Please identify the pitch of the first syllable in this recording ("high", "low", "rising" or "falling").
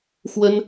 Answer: high